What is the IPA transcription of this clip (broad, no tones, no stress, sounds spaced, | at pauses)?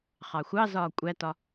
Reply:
χ ɑ xʷ ɑ z ɒː kʷʼ æ t ɒ